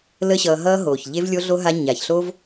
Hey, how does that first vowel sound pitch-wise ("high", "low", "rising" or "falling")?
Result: high